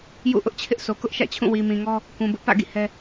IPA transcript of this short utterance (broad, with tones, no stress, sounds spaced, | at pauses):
j ṵ˦˨ ʔ ʊ˦ ʔ t͡ɕʰ ɪ˦ ʔ s o˨ k ʊ˦ ʔ ʃ ä̰˦˨ t͡ɕʰ ũ˦˨ w i˨ m ĩ˨ ŋ ɔ˦ | k ũ˨ b ʊ˦ ʔ p ä̰˦˨ ɡ ḭ˦˨ h ɛ˦